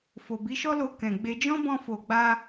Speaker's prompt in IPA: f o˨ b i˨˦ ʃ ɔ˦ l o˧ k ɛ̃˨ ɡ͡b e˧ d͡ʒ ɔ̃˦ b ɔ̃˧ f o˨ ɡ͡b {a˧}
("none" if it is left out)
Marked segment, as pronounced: a˧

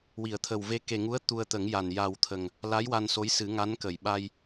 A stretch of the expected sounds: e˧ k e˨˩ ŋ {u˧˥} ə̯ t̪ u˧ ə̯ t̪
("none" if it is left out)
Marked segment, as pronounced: u˧˥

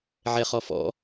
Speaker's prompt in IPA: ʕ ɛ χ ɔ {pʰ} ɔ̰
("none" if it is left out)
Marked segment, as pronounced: f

